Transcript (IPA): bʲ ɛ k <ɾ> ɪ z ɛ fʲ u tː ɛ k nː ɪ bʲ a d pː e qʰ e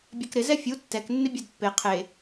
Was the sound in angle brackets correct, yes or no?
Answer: yes